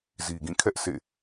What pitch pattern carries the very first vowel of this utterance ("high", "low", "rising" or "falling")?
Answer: low